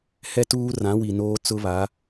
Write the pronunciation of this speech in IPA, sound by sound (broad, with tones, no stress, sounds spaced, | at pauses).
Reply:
h ɛ˦ t uː˦ r ã˨˦ w i˨ n oː˦ t͡s ʊ˦ β a˨˦